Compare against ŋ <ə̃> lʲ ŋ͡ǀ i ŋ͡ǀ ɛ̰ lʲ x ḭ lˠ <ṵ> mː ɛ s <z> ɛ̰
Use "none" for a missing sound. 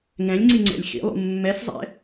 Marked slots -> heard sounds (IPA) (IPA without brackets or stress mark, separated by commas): ɛ̃, ṵ, zˤ